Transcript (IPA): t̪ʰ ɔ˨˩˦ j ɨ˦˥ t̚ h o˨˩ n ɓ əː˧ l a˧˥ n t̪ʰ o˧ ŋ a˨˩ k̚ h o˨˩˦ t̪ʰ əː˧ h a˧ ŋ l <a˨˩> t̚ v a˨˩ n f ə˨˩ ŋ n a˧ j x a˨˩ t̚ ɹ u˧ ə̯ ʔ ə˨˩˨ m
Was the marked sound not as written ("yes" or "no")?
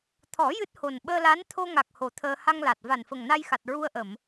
no